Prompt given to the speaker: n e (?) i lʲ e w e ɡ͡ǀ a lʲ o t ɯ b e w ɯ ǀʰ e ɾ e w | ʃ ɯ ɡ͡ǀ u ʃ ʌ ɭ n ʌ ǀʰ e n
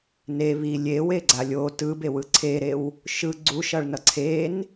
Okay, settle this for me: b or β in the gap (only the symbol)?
β